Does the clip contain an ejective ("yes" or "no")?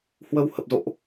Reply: no